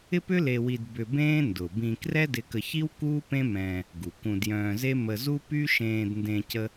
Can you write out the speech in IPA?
ɪ˥ p ʏ˥ l e˧ w i˧ d b ʏ˧ b ẽː˥ n d ʊ˩ b ĩ˧ k r ɛ˥ d ɪ˧ k ə˧ ç i˥ w k uː˥ p ẽ˥ m ɛ̃ː˧ | ɡ u˩ k ũ˧ d j œ̃ː˧ z e˥ m ə˧ z u˥ p y˥ ʃ ẽː˧ d n d ẽ˧ c ə˥

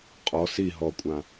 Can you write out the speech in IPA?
qʼ ɔ s i ɦ ɔ kʷʼ ã

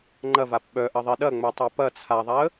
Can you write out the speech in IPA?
ŋ͡ǃ ɐ v a p ɓ œ ʔ ɐ ðˤ i ɗ ɐ ŋ͡m œ tˤ a p ɐ t͡sʰ a ðˤ a ə̯

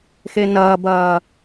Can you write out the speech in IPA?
x e n ɐː b ɐː

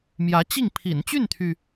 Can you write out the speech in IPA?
m j ä˧˥ t͡ɕ i˥˩ ŋ pʰ ḭ˨˩ n t͡ɕ y˥˩ n t̪ʰ y˩

